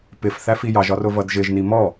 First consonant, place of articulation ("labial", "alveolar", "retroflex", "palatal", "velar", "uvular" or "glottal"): labial